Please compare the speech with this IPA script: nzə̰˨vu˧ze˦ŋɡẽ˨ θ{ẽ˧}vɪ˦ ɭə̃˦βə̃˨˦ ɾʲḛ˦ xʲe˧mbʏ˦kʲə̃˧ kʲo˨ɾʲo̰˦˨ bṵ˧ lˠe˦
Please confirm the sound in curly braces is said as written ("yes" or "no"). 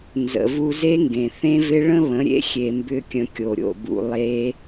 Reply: no